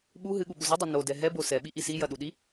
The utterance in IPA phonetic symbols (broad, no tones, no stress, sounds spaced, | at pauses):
ɓ u ɦ ɨ ɠ u ɓ u z ɨ dˤ ɐ n o d ɛ ɦ ɛ b o s ɛ ɓ i ʔ i s i j ɐ ɗ u ɗ i